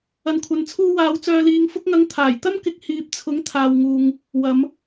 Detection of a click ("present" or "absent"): absent